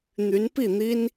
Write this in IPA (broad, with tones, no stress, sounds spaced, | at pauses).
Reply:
n̪ y˧˥ n p i˥˩ n̪ i˥ n